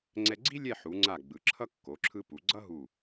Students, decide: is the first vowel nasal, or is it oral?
oral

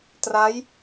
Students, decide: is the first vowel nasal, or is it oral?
oral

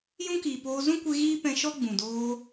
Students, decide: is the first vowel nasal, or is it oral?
nasal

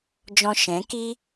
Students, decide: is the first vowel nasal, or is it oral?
nasal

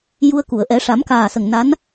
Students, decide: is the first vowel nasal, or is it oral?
oral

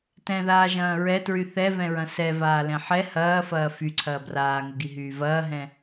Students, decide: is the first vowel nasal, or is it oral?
nasal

